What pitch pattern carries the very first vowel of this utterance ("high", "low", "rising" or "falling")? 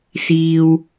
low